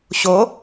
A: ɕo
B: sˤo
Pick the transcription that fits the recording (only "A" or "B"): A